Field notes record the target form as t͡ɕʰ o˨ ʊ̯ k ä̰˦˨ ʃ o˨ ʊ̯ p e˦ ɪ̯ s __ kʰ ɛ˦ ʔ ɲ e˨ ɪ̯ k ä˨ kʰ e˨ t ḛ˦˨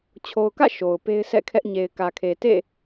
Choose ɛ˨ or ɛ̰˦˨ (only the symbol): ɛ̰˦˨